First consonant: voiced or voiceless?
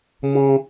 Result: voiced